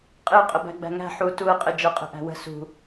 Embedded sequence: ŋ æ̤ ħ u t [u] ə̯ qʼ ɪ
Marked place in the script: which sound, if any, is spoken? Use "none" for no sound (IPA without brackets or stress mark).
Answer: u